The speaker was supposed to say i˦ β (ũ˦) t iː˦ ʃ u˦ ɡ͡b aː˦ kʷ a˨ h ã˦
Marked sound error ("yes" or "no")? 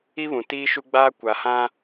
yes